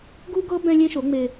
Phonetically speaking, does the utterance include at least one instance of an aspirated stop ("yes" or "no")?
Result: no